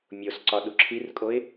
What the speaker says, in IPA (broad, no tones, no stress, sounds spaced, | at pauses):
mʲ o s ǀ ɒ ɗ u ǁʰ i r kʼ o ɪ̯